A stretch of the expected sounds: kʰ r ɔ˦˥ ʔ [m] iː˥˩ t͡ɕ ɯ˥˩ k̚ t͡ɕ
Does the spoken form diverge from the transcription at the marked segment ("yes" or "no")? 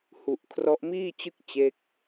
no